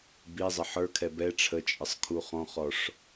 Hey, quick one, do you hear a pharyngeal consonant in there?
yes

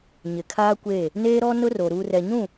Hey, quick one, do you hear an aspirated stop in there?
yes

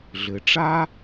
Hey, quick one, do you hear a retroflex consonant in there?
yes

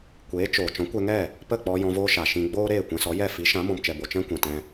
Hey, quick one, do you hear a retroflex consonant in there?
no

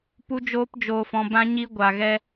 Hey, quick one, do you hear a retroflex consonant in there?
no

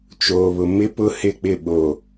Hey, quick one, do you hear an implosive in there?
yes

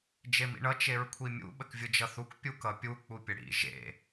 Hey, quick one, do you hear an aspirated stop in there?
yes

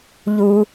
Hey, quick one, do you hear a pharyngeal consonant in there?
no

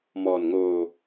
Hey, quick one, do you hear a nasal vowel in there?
no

